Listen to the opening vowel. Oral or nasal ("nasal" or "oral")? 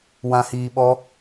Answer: nasal